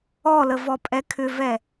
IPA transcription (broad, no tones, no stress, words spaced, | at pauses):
ɔlə vɔpʼɛkʰʏvɛ